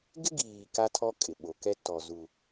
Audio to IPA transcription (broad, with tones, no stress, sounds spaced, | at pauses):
ɡ ɪ˦ ɡ iː˨ k a˦ tʰ ɔ˦ kʼ ɪ˨ ɓ o˨ k ɛ˦ t ɔ˨ z u˨